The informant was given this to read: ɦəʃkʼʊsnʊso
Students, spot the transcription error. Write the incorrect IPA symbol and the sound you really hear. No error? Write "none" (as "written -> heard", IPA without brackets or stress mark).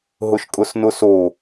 ə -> ʊ